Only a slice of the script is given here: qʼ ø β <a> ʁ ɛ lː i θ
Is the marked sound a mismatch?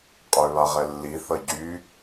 no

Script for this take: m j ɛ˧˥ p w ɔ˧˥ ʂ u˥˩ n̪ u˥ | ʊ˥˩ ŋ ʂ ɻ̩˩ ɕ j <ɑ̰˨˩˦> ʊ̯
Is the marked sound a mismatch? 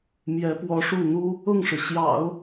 no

